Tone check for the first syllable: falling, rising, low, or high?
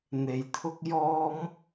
low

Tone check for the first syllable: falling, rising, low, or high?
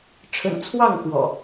low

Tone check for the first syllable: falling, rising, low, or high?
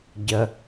low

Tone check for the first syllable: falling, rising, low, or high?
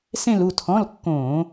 falling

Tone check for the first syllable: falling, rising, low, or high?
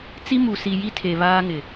high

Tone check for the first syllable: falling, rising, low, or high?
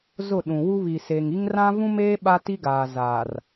falling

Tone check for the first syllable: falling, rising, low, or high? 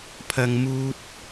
low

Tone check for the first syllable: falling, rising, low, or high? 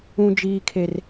high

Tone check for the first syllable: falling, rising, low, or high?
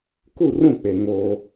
falling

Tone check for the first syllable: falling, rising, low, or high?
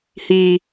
low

